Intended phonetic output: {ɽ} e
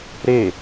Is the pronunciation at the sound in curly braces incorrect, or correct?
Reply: incorrect